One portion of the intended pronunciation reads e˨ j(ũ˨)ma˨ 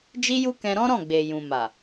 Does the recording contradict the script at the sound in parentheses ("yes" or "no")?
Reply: no